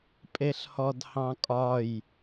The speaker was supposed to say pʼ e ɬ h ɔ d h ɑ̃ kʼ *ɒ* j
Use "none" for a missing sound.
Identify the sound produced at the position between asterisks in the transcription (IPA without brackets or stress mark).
ɒ